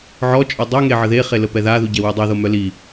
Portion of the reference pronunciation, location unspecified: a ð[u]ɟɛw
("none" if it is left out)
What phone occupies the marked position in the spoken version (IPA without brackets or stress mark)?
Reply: u